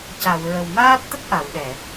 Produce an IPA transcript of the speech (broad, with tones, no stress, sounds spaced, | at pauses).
c a˨˩˨ w ɹ ə˨˩ w m aː˦˥ t̚ t̪ ə˦˥ k̚ ʔ a˨˩˨ w ɗ ɛ˨˩˨